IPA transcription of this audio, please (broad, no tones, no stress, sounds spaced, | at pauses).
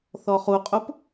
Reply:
θ ɔ χ u qʼ u p